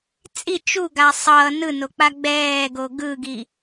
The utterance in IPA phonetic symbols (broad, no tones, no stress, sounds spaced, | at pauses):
t͡sʼ i t͡ʃ u ɡ a sˤ ʌː n ɯ n o k͡p a ɡ͡b ɛː ɡ o ɡ ɯ ɡ i